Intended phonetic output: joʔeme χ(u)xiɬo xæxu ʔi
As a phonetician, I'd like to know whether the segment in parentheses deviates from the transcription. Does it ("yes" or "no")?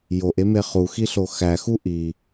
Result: no